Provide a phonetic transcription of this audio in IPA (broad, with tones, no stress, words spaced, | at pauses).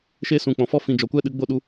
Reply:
ʃe˦ sũ˨ k͡pɔ̃˨fɔ˦ fĩ˨ d͡ʒɔ˨kʷɛ˦ɗɨ˨˦ ɡ͡bo˦˨ɗu˧